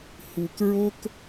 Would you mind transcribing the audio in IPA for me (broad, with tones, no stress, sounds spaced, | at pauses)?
h u˥ k ɹ o˥ k